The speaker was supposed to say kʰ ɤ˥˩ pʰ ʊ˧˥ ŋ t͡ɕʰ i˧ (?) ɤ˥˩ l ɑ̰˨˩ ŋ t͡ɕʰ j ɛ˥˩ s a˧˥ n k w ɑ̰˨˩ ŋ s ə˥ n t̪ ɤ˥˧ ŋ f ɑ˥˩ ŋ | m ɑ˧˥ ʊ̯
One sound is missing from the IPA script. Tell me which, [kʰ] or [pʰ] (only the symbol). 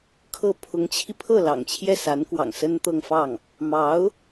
pʰ